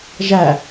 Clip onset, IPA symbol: ʒ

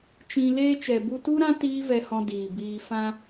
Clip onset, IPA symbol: t͡ʃ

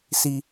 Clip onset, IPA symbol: s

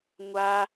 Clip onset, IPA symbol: ŋʷ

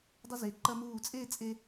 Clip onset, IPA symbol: dˤ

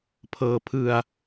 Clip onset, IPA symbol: pʰ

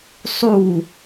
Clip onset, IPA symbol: sˤ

